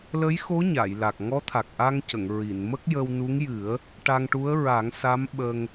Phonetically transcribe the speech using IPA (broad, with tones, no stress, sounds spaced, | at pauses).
l ə˧˥ j x o˧˥ ɲ a˨˩˨ j l a˨˩ k̚ ŋ ɔ˧˥ t̪ʰ a˨˩ k̚ ʔ a˧ ŋ c ə˨˩˨ ŋ ɹ i˨˩˨ n m ə˦˥ k̚ j ə˧ w n u˧˥ ŋ j ɨ˨˩˦ ə̯ | ʈ a˧ ŋ ʈ u˧˥ ə̯ ɹ a˨˩˦ ŋ s a˧˥ m ɓ ə˧ ŋ